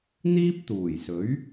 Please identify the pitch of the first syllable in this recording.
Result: high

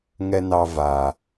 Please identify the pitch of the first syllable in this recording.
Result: high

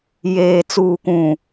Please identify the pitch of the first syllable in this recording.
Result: low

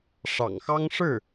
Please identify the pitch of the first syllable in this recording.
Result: low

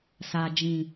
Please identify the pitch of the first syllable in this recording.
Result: low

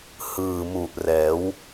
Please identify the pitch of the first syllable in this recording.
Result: low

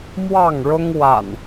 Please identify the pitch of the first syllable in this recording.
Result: falling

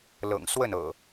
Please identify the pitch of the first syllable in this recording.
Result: low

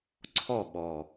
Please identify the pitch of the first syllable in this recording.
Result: falling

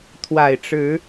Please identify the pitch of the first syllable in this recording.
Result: low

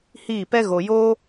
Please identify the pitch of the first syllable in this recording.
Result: falling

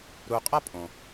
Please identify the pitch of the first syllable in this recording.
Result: low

